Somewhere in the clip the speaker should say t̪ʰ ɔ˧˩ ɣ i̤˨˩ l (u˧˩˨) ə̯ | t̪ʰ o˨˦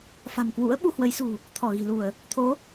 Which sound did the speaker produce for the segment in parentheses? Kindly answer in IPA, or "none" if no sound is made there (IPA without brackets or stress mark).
u˧˩˨